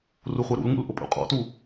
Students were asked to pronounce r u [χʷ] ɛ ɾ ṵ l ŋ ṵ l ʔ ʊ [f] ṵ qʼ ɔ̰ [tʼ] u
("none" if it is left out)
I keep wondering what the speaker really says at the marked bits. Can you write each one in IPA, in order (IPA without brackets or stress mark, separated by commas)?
χʷ, pʼ, t